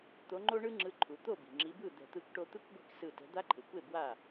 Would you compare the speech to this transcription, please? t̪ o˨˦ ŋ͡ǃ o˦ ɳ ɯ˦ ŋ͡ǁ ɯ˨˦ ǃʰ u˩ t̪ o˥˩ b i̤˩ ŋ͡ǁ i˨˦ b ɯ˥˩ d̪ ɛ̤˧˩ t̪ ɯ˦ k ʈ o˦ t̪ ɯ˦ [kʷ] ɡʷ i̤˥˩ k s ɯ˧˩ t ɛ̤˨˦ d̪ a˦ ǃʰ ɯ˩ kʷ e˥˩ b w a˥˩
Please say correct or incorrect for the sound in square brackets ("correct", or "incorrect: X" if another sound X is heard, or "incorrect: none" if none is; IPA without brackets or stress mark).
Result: correct